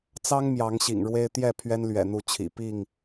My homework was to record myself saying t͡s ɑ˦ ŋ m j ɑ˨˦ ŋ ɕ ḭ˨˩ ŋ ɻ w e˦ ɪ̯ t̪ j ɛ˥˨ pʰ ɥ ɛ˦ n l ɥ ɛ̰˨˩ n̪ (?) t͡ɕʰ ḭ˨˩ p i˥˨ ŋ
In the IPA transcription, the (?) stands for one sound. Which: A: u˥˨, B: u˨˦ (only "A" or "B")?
A